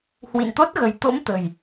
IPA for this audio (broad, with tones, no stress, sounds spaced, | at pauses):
h w ḭ˧˨ n t̪ o˦˥ t̚ ɣ ə̤˨˩ j t̪ o̰˧˥ m t̪ ə̤˨˩ j